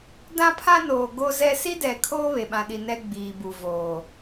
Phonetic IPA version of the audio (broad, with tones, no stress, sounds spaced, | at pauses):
d ã˦ pʰ ã˦ n oː˨ ɡ o˦ z ɛ˦ s i˦ d ɛ˨ kʰ oː˦ β e˨ ɓ ã˨ ɗ i˨ n ɛ˦ ɡ͡b iː˨ b u˨ v oː˨